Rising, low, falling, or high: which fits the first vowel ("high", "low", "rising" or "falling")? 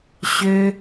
high